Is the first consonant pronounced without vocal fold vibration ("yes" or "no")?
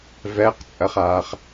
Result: no